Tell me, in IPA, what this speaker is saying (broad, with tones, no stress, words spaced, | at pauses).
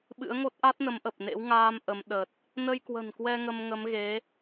ɓɨ̰˧˥ə̯ŋo˦˥t̚ ʔa˦˥t̚nə˨˦mʔə˨˩p̚nḛ˧˥w ŋaː˧m ʔə˨˦m ɗə˨˩t̚ | nə˧jkwə̤˨˩nkwɛ˧ ŋə˧mŋə˨˦m ɣe˨˦